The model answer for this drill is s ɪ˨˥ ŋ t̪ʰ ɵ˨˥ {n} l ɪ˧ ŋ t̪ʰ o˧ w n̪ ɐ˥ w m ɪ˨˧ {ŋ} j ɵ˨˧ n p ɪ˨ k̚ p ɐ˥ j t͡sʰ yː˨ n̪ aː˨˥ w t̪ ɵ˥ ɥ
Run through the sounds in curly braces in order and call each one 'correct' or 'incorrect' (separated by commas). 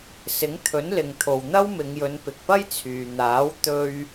correct, correct